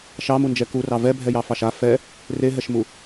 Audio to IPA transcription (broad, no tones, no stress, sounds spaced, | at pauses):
ʃ ɑ m u n d͡ʒ ɛ k u r ɑ v ɛ bʱ ɛ j ɑ f ɑ ʃ a f ɛ | r e ɦ ɛ ʃ m u